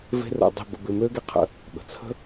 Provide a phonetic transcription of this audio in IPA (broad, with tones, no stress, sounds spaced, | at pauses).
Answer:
v e̤˦ r ə̰˧ dˤ i̤˦˨ b ə̰˧ b ɪ˧ m ø˦ ɡ e˦ qʰ ə̰˧ | ɓ ə̤˨ t͡sʰ ə̤˦